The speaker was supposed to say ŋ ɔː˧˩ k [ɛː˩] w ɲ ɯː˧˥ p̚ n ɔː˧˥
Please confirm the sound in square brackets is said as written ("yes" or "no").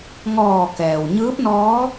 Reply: yes